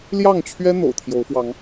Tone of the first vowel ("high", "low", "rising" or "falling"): falling